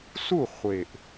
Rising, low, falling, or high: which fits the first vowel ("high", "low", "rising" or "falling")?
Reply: falling